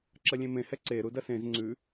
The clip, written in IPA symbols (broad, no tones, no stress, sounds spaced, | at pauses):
ǁ ɐ lʲ ẽ m ẽ h ɛ ǀ e ɾ u d ɐ s ẽ z ŋ͡ǀ ʉ